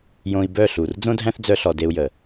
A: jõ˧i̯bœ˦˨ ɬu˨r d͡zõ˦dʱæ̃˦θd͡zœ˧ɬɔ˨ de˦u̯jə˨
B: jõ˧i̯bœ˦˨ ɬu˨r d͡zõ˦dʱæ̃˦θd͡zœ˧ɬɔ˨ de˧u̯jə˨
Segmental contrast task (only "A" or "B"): B